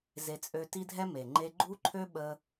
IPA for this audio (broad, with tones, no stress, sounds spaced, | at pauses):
z e˧ t͡sʼ ø˧ t i˦ dʱ ɛ˦ m e˨ ŋ͡ǃ e˦ ɡ͡ǃ u˦ ǃʰ ø˦ ɓ ə˧